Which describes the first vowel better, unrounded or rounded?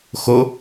rounded